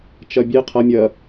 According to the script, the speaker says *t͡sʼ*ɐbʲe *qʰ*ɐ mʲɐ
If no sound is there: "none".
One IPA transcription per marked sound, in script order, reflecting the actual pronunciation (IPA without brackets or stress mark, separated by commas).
t͡ʃ, qʰ